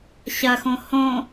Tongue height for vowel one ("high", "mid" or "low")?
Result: low